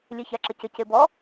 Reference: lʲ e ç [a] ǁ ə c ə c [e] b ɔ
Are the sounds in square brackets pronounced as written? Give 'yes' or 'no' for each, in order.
yes, yes

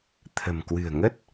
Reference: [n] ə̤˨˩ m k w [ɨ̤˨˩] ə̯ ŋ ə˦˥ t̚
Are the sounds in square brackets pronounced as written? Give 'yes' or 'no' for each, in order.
no, yes

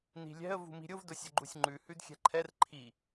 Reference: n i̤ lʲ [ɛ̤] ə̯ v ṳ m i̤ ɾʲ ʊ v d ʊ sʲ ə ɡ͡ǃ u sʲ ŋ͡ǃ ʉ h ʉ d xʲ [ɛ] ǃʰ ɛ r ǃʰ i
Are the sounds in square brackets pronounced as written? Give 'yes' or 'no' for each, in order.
yes, no

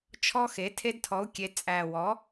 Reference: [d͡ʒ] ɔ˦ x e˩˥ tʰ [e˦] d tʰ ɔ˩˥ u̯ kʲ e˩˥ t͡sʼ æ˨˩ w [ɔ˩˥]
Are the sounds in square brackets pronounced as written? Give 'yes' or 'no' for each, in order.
no, yes, yes

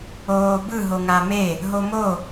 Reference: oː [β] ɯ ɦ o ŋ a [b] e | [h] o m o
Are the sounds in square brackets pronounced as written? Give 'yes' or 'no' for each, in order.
no, no, no

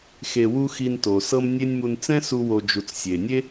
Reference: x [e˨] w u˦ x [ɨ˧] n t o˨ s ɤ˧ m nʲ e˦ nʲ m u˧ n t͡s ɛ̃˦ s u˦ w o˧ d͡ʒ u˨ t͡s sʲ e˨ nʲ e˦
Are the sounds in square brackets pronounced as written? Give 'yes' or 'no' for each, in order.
no, no

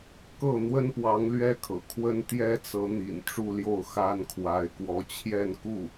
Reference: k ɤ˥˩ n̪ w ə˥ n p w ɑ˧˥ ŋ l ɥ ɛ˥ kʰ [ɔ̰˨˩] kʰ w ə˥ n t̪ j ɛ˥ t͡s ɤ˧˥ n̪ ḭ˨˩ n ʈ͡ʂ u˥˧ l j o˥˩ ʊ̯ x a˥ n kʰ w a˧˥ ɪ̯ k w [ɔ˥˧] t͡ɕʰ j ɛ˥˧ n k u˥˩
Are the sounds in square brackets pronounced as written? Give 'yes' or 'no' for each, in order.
no, no

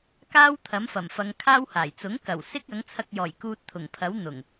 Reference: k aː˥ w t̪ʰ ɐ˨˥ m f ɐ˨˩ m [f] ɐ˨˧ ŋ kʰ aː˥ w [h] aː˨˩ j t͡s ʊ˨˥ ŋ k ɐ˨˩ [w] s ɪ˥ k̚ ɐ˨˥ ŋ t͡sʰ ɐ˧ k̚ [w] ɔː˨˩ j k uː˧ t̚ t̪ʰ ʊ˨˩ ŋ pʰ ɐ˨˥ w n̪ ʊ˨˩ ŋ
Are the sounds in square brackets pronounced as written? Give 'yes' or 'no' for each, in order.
yes, yes, yes, no

